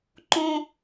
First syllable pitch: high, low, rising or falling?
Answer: high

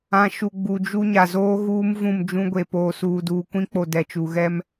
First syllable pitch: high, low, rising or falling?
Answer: low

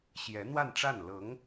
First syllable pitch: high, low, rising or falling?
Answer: rising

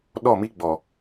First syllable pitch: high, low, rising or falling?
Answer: falling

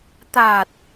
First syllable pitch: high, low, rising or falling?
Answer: low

